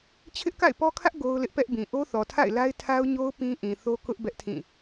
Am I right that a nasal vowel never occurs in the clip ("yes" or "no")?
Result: no